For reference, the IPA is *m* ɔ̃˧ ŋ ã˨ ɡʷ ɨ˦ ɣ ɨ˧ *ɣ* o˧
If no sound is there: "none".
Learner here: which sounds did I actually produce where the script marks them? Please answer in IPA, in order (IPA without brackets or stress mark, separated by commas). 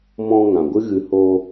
m, h